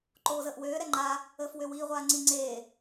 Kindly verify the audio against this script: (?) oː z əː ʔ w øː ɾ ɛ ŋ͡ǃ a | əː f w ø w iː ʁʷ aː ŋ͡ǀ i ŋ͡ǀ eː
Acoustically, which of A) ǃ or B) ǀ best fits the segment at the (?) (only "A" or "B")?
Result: A